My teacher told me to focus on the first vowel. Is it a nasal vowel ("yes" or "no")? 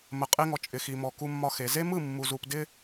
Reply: no